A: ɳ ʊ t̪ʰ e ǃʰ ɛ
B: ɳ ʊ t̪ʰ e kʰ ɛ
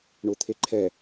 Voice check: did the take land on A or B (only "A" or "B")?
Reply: A